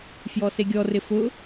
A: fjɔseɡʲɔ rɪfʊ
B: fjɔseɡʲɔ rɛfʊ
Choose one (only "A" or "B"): A